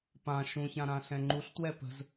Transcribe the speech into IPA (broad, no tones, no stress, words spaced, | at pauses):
pã ʃũçã ɾãɬɛ̃ŋ͡ǃuɬtwɛ pə̤z